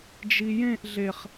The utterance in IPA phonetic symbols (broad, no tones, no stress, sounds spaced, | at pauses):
d͡ʒ i j ẽ ʔ ɮ e χ